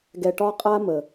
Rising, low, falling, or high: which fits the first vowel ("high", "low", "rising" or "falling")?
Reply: low